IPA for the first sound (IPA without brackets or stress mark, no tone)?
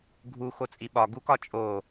ɡʱ